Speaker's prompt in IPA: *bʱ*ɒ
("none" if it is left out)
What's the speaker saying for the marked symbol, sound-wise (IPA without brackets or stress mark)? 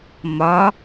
m